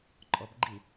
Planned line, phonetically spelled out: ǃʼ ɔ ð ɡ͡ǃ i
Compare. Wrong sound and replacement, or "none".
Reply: ð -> b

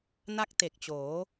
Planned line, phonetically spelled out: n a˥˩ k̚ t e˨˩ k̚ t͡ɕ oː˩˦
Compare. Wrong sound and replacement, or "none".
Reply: none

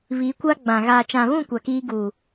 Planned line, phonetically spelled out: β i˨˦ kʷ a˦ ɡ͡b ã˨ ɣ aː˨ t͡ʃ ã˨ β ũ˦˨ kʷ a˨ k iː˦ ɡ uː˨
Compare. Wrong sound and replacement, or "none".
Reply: none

